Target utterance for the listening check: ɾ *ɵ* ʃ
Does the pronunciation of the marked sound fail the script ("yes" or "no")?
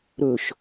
no